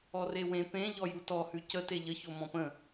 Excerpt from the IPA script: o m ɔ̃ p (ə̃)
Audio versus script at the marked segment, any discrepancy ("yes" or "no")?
no